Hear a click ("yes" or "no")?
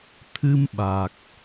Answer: no